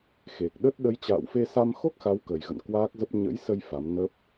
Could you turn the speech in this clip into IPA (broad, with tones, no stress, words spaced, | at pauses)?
xe˨˩k̚ɗə˦˥t̚ ɗə˨˦jt͡ɕa̰ː˧˨wfe˧sa˧m xo˦˥k̚xa˨˦wkə˨˩jɣə̰˧˨n kwaː˦˥k̚zə˦˥p̚ ɲə̰˧˥jsə˧j fa˨˦mnə˦˥p̚